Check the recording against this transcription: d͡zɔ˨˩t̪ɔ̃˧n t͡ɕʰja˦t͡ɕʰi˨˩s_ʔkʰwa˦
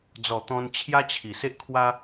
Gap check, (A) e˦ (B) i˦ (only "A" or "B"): A